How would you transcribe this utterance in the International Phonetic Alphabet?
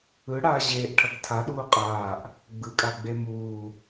ɯɽaː ʑeːʔʈʰʌɡ tʰaɗuː qʼaːʔ | ɡ͡bɯkʼaɡ͡be muː

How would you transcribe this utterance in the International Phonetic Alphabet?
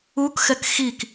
ukxɛk xik

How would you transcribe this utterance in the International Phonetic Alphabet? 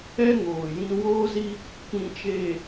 ɛ˦ŋoː˨jĩ˦ woː˦zi˦ | kĩ˨t͡ʃeː˨

